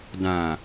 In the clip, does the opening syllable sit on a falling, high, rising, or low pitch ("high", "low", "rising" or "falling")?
low